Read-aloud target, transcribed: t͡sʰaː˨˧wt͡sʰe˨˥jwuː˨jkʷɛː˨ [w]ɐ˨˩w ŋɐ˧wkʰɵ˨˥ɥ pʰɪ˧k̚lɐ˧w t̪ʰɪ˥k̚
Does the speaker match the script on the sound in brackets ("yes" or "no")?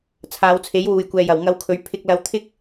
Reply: no